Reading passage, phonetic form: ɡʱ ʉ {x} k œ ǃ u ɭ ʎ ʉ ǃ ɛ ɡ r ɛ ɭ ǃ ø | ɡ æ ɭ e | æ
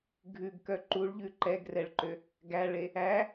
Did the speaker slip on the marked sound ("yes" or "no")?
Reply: yes